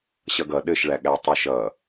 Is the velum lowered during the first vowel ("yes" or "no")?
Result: no